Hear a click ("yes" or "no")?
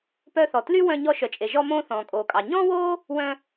no